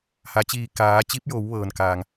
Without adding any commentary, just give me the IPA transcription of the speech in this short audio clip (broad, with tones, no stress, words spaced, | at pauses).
ha˩˧t͡ɕiː˧˩ kaː˩˧t͡ɕi˧˥p̚jo˩˧w ʋɤː˩nkaː˩ŋ